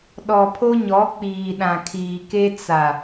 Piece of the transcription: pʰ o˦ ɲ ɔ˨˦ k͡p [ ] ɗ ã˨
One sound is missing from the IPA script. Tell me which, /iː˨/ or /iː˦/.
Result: iː˨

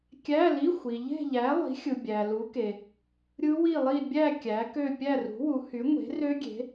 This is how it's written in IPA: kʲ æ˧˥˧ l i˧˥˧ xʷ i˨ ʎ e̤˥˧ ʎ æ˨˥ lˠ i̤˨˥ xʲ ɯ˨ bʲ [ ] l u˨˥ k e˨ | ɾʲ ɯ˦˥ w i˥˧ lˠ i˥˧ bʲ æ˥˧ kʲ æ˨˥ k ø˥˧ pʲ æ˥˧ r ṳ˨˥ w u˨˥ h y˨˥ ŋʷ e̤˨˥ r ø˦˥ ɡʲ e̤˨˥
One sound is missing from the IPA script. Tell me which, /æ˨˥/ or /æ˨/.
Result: æ˨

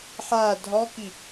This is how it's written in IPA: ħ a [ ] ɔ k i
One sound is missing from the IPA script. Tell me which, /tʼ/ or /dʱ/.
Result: dʱ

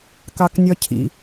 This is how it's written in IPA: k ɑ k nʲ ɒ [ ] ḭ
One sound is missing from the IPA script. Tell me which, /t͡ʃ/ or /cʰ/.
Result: cʰ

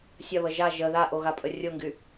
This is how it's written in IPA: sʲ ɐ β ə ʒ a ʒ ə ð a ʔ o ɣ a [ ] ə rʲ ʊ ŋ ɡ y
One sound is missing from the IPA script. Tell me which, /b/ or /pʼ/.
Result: pʼ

